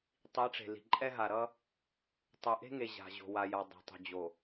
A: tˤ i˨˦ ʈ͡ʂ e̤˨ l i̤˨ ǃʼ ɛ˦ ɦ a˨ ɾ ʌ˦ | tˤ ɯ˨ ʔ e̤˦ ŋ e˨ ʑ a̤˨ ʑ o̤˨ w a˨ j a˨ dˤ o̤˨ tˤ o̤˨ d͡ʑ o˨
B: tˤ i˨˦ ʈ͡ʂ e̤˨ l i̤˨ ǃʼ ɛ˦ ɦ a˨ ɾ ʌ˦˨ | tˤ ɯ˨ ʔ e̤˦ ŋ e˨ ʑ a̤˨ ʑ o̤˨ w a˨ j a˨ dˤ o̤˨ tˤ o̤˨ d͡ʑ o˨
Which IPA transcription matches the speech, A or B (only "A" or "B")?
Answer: A